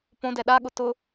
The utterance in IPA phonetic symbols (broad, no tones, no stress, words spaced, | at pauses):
põdɛ ɗaɠʊ tʊ